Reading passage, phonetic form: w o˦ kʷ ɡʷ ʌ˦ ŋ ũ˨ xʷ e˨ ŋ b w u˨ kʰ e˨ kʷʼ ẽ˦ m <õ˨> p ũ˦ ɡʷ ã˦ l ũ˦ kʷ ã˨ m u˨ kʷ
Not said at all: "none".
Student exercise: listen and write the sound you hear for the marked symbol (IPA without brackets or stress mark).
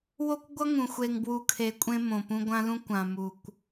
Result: õ˨